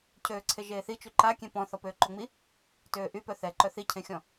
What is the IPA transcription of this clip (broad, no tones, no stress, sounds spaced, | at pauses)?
cʰ øː ǀʰ e ʒ eː θ i t͡ʃ y ǃ a kʲ ẽ p ɔ̃ θ ɔ p øː ǃ o ŋ͡m i | t øː ʔ y p œ θ ɛ ǃ œ θ i cʰ ẽ xʲ ɔ̃